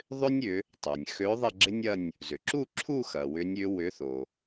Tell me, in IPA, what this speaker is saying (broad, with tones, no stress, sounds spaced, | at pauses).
ðˤ ʏ˥ nʲ ʏ˨˦ | tˤ œ˩ nʲ x ø˨˦ ðˤ ɐ˥˧ ɡ͡ǁ ɪ˥ nʲ ɐ˥˧ nʲ | z ʏ˩ ǁ u˥˧ ǁʰ u˥˧ x ɐ˩ w ʏ˨˦ nʲ ʏ˨˦ w ʏ˨˦ θ o˩